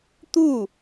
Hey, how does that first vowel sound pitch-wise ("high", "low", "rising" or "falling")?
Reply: falling